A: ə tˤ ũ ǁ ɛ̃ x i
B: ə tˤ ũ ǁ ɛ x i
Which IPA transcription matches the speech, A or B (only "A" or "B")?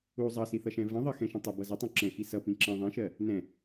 A